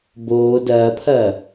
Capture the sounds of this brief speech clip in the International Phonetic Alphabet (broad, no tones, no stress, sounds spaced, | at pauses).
b oː d ɐː pʰ ɐː